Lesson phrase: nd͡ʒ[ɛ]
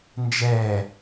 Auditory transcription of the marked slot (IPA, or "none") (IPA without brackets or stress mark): ɛ